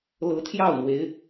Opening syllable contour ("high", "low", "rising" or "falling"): rising